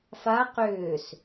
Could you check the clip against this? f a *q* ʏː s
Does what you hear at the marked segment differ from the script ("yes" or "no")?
no